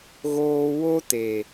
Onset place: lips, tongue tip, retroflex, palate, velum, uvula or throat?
velum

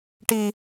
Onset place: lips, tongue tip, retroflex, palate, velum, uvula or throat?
retroflex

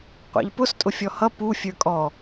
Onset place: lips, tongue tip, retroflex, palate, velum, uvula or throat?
uvula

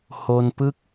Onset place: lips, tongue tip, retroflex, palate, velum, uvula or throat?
throat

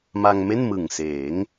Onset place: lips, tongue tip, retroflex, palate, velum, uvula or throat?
lips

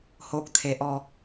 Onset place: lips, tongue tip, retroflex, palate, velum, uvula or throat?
throat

